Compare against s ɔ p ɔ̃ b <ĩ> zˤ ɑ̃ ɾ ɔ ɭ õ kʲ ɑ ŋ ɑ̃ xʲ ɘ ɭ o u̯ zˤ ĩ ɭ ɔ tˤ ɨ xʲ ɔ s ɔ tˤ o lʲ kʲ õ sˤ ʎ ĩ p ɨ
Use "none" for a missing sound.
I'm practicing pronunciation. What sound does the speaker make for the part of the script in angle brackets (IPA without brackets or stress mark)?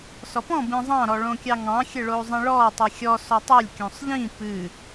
ĩ